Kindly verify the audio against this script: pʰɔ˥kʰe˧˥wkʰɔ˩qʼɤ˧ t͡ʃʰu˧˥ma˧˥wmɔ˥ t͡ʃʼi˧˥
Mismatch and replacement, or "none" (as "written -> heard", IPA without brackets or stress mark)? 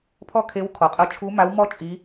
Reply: none